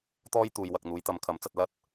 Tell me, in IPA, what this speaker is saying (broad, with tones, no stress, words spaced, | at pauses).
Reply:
t̪ɔː˥jt̪uː˨j wɐ˨k̚n̪uː˨˧j t̪ɐ˨˧mkʰɐ˨˥mt͡sɐ˧t̚lɐ˥t̚